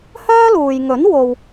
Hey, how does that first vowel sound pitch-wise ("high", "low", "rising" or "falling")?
high